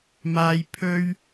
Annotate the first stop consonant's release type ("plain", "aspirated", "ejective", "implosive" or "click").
aspirated